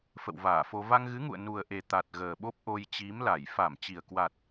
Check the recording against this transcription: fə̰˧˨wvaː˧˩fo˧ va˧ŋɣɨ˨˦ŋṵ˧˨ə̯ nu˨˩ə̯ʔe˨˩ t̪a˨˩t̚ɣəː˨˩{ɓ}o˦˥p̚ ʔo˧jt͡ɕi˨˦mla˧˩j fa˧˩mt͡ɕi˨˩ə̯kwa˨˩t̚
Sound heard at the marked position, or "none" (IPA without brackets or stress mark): ɓ